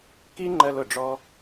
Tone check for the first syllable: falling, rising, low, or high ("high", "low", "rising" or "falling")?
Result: high